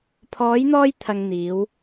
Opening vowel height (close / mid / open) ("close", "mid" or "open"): mid